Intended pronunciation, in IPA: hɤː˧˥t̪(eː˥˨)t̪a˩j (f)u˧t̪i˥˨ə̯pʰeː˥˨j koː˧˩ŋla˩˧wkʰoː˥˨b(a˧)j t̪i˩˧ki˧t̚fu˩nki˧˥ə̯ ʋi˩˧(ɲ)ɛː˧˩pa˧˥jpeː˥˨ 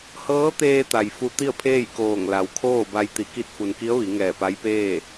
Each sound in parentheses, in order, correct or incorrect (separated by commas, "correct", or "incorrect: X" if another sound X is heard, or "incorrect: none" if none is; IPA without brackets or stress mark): incorrect: eː˧, correct, correct, incorrect: ŋ